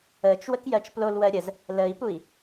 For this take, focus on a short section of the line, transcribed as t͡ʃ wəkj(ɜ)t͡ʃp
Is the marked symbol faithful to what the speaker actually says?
yes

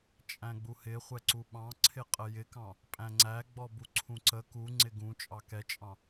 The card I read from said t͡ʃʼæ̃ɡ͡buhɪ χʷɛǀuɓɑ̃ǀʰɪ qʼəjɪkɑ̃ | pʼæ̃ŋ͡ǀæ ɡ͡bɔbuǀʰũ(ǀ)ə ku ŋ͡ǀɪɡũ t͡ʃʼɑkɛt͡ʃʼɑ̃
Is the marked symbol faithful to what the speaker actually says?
yes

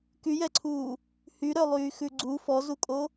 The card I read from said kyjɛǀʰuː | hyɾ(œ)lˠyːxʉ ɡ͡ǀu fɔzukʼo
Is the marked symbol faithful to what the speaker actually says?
yes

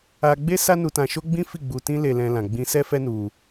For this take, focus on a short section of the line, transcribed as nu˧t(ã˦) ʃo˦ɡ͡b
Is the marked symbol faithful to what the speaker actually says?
no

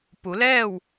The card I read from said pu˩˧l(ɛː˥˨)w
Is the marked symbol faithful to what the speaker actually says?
yes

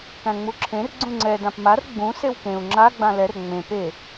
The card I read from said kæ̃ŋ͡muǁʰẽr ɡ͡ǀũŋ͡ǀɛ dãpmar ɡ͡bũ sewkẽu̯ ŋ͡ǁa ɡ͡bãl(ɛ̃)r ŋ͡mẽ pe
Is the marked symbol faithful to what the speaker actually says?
no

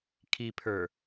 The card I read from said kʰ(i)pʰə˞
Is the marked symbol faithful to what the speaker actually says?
yes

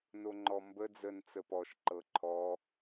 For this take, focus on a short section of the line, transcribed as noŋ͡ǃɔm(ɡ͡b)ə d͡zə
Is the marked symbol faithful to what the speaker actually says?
no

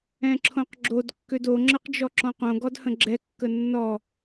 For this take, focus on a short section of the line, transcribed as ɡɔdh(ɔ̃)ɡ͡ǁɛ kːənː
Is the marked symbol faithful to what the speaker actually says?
no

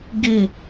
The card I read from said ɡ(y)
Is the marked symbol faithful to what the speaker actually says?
no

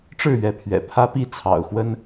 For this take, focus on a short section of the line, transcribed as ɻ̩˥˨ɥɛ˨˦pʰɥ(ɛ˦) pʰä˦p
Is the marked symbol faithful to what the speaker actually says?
no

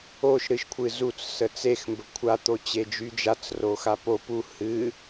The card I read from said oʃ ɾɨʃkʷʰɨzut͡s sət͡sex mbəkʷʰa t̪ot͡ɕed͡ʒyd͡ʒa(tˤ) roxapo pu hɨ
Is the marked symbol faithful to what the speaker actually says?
no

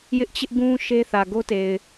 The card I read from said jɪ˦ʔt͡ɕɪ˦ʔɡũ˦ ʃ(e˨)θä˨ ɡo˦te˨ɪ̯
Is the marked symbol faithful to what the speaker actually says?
no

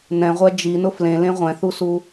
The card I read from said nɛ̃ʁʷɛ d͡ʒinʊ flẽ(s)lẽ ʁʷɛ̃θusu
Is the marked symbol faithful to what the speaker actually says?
no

